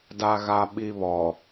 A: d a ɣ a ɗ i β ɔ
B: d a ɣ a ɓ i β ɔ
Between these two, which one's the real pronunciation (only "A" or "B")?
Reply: B